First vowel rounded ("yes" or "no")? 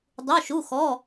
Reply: yes